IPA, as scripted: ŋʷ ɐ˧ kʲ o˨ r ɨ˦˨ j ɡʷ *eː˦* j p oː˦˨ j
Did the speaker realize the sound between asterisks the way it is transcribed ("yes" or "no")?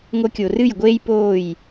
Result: yes